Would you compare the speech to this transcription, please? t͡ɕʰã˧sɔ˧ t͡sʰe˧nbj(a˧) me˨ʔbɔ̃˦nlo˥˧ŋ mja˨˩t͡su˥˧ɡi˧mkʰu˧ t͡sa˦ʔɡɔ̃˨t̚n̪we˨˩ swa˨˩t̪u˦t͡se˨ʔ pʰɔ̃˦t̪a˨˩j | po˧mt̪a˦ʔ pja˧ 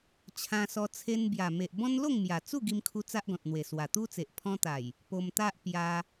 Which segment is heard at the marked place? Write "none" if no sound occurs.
a˨˩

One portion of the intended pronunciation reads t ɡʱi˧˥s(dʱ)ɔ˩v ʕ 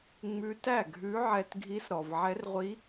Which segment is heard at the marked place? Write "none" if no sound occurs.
ɾ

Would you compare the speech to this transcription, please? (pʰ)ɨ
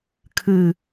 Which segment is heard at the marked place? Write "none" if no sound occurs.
kʰ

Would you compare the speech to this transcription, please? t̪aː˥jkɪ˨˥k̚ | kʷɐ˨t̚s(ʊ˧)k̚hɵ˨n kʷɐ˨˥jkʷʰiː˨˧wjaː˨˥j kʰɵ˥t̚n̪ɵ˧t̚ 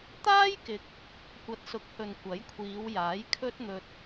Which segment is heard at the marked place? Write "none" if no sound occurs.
ʊ˨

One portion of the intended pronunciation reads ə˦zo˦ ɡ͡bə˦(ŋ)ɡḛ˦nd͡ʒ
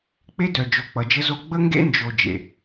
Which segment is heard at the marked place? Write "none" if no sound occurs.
ŋ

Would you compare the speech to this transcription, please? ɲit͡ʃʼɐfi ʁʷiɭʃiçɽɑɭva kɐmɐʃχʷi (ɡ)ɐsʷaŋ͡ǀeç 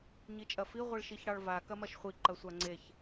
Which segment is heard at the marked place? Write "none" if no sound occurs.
ǃ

